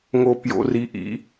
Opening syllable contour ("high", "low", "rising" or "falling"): low